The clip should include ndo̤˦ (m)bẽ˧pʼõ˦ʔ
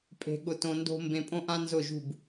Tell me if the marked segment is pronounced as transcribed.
yes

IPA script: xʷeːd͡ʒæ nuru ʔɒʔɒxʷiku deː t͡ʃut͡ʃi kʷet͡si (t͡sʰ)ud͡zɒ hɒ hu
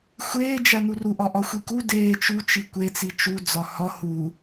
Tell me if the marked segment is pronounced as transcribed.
no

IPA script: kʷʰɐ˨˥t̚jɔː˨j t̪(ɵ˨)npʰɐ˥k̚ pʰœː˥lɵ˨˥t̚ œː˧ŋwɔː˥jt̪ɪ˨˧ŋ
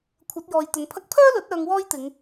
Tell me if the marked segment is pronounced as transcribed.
no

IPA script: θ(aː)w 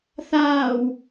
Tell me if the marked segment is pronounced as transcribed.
yes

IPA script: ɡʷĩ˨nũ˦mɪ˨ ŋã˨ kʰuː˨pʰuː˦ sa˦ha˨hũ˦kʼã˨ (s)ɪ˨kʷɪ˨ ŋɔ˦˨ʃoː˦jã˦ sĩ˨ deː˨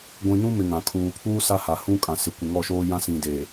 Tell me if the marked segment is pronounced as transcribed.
yes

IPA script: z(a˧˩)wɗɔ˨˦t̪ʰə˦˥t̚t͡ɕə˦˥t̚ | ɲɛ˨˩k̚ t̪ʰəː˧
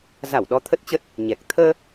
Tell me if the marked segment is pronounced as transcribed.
yes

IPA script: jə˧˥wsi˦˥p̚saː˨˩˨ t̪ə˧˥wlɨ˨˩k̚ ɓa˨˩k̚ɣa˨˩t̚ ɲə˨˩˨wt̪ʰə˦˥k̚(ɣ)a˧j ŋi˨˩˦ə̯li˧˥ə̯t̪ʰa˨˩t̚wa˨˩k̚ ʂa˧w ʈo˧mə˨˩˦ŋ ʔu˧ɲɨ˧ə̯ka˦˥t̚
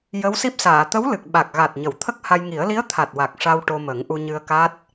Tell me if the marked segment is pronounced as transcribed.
no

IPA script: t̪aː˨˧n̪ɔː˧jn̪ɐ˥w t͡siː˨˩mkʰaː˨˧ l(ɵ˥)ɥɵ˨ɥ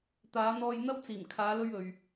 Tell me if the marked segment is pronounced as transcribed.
yes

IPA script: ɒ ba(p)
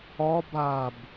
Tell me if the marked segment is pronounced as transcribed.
no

